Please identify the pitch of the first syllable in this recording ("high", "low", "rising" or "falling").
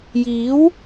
rising